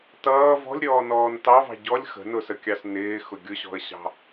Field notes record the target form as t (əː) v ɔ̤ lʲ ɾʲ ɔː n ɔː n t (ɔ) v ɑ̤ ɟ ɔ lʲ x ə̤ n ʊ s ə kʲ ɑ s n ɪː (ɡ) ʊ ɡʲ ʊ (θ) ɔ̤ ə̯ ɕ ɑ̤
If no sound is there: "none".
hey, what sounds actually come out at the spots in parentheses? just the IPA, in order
ʌː, ɑ, x, ɕ

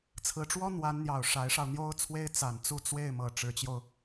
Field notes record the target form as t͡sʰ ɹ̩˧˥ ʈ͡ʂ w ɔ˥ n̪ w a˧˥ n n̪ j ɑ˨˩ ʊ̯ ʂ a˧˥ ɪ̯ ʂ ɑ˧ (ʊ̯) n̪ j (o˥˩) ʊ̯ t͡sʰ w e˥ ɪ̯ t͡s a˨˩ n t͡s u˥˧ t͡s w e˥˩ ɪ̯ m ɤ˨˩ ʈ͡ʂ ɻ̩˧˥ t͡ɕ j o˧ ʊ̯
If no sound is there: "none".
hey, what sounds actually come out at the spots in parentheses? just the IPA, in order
ʊ̯, o˥

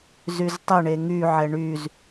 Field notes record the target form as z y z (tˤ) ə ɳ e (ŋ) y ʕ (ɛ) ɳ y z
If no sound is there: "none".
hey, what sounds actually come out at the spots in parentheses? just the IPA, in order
tˤ, ŋ, ɛ

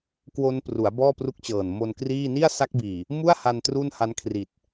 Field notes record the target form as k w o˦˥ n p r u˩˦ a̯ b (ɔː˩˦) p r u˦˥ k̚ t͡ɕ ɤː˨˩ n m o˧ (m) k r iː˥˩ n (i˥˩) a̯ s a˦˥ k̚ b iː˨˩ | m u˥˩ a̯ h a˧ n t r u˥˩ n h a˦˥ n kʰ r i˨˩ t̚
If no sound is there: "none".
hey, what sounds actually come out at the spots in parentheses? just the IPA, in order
ɔː˥˩, n, i˥˩

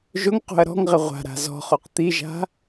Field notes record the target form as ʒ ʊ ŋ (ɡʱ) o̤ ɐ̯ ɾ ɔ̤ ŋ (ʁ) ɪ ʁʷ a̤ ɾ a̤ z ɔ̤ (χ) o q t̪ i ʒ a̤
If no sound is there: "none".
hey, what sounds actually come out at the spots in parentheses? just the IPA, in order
q, ʁ, χ

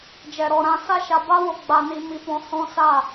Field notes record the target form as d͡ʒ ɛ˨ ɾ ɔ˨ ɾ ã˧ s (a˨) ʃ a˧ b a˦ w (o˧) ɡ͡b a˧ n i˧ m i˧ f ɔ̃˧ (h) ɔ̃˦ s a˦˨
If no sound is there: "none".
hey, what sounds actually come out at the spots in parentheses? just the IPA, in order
a˦, o˧, h

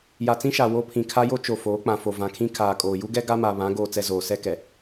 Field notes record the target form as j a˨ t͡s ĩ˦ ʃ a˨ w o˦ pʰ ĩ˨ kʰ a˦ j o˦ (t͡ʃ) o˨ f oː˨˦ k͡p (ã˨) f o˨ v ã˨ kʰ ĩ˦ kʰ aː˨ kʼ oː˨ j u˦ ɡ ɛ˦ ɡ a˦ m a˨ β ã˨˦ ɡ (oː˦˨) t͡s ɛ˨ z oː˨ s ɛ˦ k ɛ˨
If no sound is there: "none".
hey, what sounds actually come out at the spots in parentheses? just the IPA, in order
t͡ʃ, ã˨, oː˨

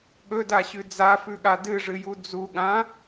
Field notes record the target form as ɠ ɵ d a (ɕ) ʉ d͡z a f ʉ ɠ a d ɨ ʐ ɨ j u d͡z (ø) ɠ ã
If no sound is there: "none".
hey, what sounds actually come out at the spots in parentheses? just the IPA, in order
ɕ, u

